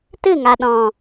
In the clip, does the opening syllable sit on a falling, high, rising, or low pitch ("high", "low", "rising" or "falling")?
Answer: falling